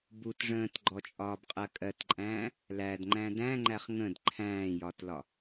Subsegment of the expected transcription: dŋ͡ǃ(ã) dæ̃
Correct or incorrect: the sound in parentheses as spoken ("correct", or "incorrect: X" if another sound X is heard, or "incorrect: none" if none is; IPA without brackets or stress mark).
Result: incorrect: æ̃